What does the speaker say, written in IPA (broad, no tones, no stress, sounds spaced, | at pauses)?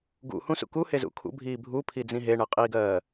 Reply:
ɡ ṵ h ũ s ṵ k u h e z ṵ kʰ ṵ bʱ iː bʱ u pʰ i d͡z ĩ ɦ e ɳ ɜ qʼ iː ɡ ɜː